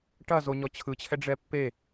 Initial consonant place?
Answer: retroflex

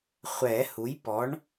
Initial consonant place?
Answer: uvular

